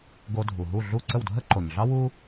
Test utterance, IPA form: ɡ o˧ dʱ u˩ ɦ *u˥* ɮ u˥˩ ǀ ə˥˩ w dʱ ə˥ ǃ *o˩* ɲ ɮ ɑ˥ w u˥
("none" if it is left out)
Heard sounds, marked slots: u˥˩, o˩

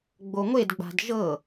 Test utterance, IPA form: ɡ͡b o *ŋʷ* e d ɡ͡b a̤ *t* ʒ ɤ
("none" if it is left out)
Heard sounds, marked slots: ŋʷ, d

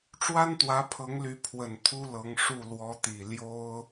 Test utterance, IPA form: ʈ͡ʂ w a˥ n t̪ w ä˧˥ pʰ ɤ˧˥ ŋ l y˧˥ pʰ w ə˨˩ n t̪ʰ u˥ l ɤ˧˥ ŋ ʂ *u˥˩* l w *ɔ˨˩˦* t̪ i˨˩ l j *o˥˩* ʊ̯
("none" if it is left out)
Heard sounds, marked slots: u˥˩, ɔ˧˥, o˥

